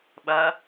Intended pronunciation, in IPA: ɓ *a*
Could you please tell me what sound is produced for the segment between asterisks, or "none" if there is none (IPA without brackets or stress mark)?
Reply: ɐ